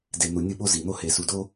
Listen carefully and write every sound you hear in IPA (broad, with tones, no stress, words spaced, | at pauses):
de˩nu˩ nʲɯ˧ɓo˧zi˩n̪o˧ he˩su˩do˧